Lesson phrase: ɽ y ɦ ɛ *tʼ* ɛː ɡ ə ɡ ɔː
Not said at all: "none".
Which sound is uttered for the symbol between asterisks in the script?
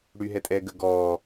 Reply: tʼ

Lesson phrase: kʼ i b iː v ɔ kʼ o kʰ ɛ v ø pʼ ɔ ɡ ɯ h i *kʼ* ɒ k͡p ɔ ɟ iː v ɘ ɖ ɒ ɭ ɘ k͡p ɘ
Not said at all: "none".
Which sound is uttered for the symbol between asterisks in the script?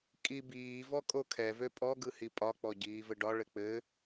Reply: pʼ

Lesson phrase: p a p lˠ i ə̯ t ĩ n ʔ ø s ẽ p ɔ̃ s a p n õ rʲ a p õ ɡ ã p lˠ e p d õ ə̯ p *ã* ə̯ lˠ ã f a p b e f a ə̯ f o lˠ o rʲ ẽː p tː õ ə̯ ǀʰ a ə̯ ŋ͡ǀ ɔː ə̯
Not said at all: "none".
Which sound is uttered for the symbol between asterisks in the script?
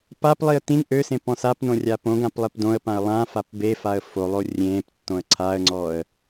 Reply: ã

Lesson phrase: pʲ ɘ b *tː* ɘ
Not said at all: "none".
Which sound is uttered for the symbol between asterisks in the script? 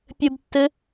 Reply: tː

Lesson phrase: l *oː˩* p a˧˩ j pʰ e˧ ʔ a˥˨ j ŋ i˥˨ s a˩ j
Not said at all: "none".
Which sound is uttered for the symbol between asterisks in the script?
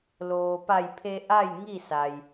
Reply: oː˩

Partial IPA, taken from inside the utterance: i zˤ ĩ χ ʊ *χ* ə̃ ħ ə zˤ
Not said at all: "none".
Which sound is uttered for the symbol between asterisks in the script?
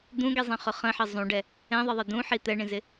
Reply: χ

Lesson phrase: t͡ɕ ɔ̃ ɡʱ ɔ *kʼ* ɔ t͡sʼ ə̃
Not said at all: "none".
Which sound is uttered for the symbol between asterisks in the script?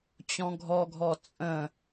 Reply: ɡʱ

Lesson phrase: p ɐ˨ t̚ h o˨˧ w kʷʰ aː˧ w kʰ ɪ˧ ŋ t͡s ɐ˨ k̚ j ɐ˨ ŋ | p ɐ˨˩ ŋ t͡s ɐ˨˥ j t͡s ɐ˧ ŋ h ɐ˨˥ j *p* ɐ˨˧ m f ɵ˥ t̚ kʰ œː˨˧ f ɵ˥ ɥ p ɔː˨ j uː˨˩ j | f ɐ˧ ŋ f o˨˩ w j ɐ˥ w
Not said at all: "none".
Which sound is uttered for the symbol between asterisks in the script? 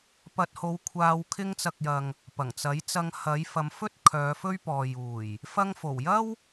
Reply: f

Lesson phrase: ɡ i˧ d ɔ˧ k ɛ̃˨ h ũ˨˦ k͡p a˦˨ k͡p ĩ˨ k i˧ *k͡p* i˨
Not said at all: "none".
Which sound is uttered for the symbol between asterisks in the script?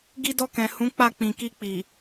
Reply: k͡p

